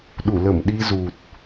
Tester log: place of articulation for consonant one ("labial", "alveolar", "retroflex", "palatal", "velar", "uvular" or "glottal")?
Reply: alveolar